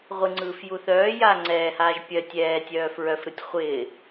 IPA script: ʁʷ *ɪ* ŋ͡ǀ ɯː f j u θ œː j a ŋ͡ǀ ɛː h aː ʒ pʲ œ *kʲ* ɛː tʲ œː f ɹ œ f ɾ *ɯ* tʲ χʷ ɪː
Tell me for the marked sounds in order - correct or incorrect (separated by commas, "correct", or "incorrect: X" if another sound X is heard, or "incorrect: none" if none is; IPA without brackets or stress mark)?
correct, incorrect: tʲ, correct